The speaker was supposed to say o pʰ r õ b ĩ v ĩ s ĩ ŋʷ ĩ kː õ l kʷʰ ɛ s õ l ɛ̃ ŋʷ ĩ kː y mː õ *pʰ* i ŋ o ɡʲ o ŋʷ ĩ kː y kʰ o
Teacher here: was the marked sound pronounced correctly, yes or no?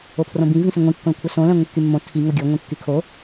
no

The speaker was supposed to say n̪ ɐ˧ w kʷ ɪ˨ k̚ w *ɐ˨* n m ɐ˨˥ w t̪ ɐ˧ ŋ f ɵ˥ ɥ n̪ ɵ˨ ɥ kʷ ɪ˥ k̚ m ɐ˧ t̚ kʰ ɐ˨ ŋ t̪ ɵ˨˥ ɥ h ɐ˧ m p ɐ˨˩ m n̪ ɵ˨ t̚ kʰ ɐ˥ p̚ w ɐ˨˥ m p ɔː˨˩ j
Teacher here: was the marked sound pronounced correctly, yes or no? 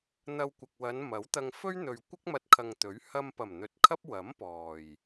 no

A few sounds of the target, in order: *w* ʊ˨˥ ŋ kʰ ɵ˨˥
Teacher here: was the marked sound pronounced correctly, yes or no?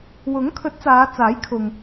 yes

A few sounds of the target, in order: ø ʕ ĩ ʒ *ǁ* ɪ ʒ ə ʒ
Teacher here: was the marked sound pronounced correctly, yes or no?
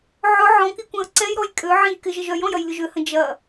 no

